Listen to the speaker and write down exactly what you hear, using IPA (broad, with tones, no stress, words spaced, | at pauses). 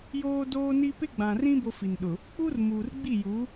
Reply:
joː˦doː˦ni˦ pɪ˦ɡ͡bã˨rĩ˦ bo˦fi˨nɗʊ˨ | k͡pu˦r muː˨rɡ͡bi˦˨ju˨˦